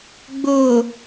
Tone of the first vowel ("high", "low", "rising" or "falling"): low